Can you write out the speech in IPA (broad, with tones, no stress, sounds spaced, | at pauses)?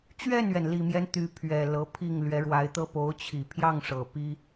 t͡ɕ ɥ ɛ˥˩ n ɥ ɛ˩ n l i˨˩ m j ɛ˦ n t̪ y˧˥ pʰ ɥ ɛ˨˩ l ɤ˧˥ pʰ i˥˩ ŋ l ɥ ɛ˧˥ ɻ w a˧˥ ɪ̯ t̪ ɤ˥ p o˧˥ ʊ̯ t͡ɕʰ i˨˩ pʰ j ɑ˥˩ ŋ ʂ ɤ˨˩ p i˥